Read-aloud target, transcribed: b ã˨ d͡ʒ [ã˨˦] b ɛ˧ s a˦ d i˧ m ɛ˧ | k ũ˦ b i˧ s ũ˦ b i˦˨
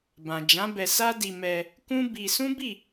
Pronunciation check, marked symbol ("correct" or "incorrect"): correct